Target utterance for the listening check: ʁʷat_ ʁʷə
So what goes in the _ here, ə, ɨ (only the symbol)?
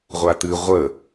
ɨ